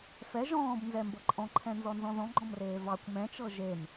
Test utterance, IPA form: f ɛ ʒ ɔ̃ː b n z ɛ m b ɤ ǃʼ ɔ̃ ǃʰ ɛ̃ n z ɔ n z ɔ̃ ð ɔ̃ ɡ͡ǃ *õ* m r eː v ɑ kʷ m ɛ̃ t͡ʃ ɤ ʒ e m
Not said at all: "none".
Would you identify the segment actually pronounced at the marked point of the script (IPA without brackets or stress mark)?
ɔ̃